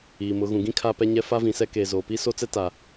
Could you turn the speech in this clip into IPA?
iː˨mʊ˨˦ ɣũ˨ɡĩ˦ kʰaː˦pɛ˦ɲɛ˦ fa˦vĩ˨sɛ˦ keː˨zoː˨ pi˦ so˦t͡sɛ˦ta˨

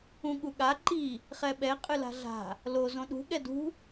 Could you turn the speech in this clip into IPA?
ũɠuɠa ǃi | χɛɓɛ qʼɨla̤ɮa̤ | lo zõɗṳ ɠɛdṳ

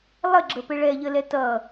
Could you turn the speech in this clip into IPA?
lˠəɡ͡ǁəpɘ ɭɛʎəlɛ tʌ

